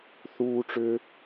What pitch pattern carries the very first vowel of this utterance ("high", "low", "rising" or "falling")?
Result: high